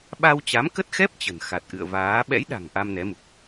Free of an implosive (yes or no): no